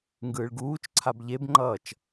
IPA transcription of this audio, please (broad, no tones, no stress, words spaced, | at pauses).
ŋɡɯːɭɡuːt͡ʃǀʰab ʎebŋ͡ǃʌːt͡ʃ